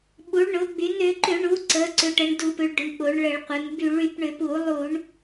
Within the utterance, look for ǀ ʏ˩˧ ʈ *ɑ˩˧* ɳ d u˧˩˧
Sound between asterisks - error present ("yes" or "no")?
yes